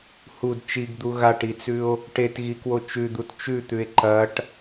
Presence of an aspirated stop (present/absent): absent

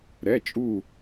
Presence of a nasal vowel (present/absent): absent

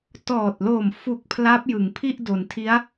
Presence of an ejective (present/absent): absent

